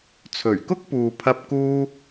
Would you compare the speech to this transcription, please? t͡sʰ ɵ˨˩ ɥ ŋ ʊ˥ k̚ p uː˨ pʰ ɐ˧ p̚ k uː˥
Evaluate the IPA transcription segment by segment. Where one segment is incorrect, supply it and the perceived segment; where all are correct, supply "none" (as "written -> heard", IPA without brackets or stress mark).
ŋ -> k